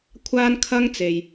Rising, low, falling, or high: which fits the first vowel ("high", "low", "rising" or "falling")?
high